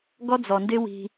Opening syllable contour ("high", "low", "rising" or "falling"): high